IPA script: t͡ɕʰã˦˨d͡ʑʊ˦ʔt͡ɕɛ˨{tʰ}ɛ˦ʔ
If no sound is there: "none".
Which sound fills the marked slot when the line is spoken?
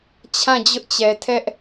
tʰ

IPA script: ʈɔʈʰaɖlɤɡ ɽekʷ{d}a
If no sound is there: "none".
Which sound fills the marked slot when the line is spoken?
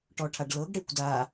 d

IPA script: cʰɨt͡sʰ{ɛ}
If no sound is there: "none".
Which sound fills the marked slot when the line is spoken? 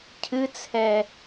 ɛ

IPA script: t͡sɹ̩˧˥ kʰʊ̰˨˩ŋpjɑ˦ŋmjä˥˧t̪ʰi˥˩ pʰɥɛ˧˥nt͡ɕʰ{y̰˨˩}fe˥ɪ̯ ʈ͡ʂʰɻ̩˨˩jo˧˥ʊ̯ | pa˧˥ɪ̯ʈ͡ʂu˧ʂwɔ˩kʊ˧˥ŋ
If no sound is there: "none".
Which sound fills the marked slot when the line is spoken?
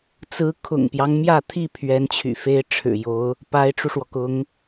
y̰˨˩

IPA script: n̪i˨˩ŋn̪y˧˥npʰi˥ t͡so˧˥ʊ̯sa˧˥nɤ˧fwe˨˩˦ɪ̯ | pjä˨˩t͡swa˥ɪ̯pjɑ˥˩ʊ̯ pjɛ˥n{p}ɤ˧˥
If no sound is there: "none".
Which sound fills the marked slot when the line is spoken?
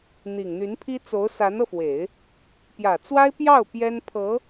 pʰ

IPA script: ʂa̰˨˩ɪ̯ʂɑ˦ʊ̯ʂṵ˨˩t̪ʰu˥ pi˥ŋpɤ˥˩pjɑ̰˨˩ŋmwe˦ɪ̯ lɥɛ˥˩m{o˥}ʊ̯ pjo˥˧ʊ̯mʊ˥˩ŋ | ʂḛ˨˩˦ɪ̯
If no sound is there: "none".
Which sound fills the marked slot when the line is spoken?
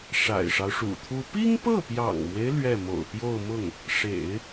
o̰˨˩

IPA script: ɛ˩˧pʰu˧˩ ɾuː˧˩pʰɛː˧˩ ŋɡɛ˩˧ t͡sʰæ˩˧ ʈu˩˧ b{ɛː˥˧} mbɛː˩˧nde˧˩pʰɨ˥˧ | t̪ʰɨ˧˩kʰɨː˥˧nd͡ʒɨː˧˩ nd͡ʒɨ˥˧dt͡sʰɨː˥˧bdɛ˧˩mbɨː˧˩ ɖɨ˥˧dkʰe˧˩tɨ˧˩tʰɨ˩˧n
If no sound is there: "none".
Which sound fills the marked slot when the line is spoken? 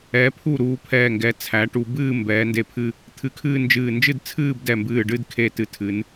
ɨː˥˧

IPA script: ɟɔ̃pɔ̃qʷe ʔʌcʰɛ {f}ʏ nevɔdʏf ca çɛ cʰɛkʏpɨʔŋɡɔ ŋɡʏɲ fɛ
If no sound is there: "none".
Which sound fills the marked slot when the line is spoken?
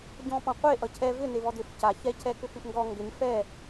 v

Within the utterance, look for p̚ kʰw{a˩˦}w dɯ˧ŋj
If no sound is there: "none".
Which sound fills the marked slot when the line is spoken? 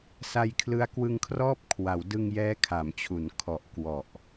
a˩˦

